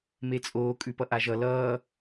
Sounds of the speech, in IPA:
met͡sʼoː kʼʉpʌʔaʒʌ lʌː

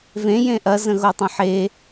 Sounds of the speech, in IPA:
vẽjẽ ʔɐzə̃ɣotˤɐ̃ ħe

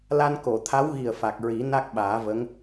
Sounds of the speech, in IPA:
la˧nko˨˩˨t̪ʰa˧˥wɣi˨˩ə̯ fa˨˩k̚ɹi˨˩˦ na˦˥k̚ɓaː˨˩˦və˧˥ŋ

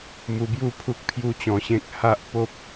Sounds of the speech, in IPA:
mu˧bju˥˧ pʰu˦k̚pʰju˦t͡ɕɔ̃˧ɕẽ˦k̚ ha˦ʔ po˦p̚

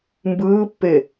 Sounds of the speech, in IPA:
mbɯːpːe

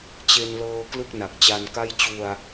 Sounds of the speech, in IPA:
t͡ɕe˧nlɤː˧ klɯ˥˩k̚na˨˩k̚t͡ɕa˧nka˥˩j t͡ɕu˧a̯

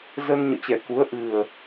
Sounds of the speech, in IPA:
zə˧n ɲɔ̰˧˨t͡ɕɛ˧˩ ku˨˦ə̯ ʔɨ˨˩ə̯

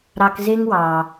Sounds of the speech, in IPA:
ɾɑ˧kze˦ŋ wɑ˨

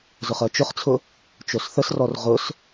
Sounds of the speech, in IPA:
zʊχɜt͡ʃʊχt͡sʰʊ | t͡ʃosθəsrɔr ʁʊs

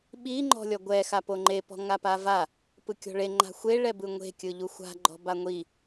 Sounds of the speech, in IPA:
ɓi ŋ͡ǃɔ̤lʲɔɡʷɛ xapoŋ͡ǃe pɔ̤ŋapava | pɯkʲɔ̤ɭe ŋ͡ǃa̤xʷe ɭɛbɯŋʷe̤ kʲɯʎuxʷa̤ ɡ͡ǃɔ̤baŋʷi

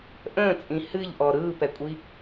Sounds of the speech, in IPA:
ʔə̃ːt͡sʼĩ hɨʎʔɔ ɾɯːpɛkʷʼi

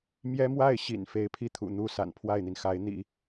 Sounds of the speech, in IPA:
mjɛ˥mwa˥˩ɪ̯ɕḭ˨˩n fe˧˥ɪ̯pʰi˥˩ t̪ʰṵ˨˩n̪u˥sa̰˨˩n pʰwa˥˩ɪ̯n̪i˩nxa˧˥ɪ̯ n̪ḭ˨˩˦

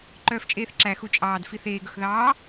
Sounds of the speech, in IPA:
ǃœːft͡ʃʼeːθǁæ xut͡ʃʼɑːd fiθeː ɡɵxðɑː

